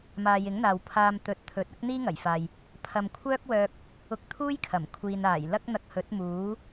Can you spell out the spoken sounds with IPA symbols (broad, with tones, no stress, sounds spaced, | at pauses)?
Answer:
m aː˨ j ɪ˨˥ ŋ n̪ aː˨ w pʰ aː˧ m t̪ ɵ˨˥ t̚ t̪ʰ ɵ˨˥ t̚ ɐ˥ k̚ n̪ iː˥ ŋ ɐ˨˩ j f aː˨ j | pʰ ɐ˨ m kʷʰ œː˥ k̚ w œː˧ k̚ | ʊ˧ k̚ t̪ʰ uː˥ j kʰ ɐ˨˩ m kʷʰ iː˨ n aː˨˩ j l ɐ˥ k̚ n̪ ɐ˧ k̚ h ɵ˨˥ t̚ m uː˨˥